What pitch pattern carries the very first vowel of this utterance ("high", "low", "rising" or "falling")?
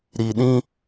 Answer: low